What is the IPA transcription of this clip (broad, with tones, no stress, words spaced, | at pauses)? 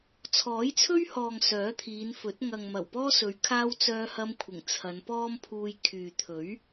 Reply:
t͡sʰɔː˨˥jt͡sʰɵ˥ɥhɔː˨ŋ sœː˨˥t̪ʰiː˨˧nfɵ˨˥t̚ ŋɐ˨ŋmɐ˨˩wpɔː˥ sɵ˨˧ɥ kʰaː˥w t͡sœː˧hɐ˧mkʷʰɪ˨˩ŋ t͡sʰɐ˨˧npɔː˥mpʰuː˧j kʰyː˨t̪ʰɵ˨˥ɥ